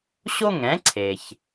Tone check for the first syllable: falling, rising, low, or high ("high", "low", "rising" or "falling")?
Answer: high